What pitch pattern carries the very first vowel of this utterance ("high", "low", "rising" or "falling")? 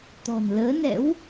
low